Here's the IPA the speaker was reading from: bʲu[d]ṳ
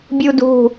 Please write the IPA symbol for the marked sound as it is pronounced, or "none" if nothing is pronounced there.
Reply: d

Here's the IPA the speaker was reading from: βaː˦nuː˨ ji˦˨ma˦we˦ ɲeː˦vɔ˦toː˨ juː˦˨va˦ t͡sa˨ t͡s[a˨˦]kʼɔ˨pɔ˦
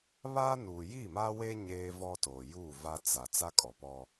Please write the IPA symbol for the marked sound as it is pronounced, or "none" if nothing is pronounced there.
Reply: a˦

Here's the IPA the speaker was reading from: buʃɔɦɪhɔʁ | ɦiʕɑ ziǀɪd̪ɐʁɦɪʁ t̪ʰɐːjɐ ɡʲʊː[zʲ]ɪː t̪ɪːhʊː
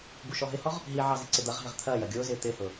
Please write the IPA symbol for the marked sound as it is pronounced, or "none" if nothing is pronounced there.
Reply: z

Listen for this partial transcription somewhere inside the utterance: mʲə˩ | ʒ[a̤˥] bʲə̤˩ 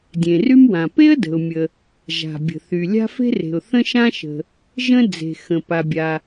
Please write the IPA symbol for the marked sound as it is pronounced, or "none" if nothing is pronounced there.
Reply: a̤˩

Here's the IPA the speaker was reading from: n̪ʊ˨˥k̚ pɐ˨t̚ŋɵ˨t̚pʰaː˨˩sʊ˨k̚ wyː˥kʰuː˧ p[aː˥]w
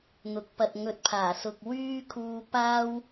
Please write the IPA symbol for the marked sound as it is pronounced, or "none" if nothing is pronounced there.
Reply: aː˥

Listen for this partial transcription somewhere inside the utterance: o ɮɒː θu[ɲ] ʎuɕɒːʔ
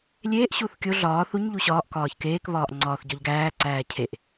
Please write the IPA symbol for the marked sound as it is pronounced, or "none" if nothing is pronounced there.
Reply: ɲ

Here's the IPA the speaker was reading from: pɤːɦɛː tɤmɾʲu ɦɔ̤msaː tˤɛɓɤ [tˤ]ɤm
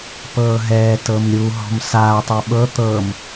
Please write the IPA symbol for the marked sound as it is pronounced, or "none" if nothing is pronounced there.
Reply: t̪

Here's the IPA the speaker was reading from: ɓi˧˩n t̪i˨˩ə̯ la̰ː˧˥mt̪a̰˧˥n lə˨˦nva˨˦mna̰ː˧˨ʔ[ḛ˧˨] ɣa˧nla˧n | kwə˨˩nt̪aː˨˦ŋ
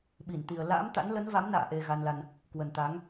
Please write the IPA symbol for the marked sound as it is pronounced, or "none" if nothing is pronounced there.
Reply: e˨˩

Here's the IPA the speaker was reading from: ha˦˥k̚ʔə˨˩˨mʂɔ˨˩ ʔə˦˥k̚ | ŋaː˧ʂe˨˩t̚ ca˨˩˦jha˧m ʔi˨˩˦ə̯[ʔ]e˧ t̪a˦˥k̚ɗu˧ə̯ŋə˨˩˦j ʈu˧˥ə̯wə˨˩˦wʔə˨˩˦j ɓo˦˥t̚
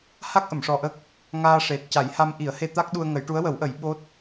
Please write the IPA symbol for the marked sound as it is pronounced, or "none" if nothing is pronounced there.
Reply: h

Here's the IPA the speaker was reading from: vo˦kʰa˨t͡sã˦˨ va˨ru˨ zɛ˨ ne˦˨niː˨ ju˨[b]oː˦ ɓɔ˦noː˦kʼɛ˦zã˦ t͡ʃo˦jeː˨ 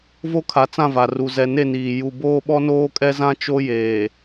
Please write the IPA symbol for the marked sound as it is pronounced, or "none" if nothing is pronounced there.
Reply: b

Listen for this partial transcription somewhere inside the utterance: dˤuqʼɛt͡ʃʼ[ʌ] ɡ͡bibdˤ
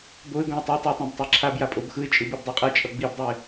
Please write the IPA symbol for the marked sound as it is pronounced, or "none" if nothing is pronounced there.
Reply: ʌ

